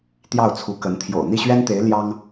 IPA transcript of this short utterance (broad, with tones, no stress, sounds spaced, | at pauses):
t̪ j ɑ˥˩ ʊ̯ t͡sʰ u˧˥ k ə˧˥ n t̪ʰ j o̰˨˩ ʊ̯ n̪ i˥˩ ɕ ɥ ɛ˥ n t̪ e˧˥ ɪ̯ l j ɑ˥ ŋ